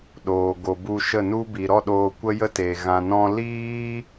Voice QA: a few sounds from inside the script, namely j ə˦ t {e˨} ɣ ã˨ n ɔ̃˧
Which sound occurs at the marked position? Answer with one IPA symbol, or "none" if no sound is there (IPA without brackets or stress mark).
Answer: e˨